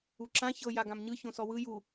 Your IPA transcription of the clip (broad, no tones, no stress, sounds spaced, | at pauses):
u ǁ ã ç ɤ j a ɡ ã m ɲ ɯ ç õ s ɔ w ɯ j u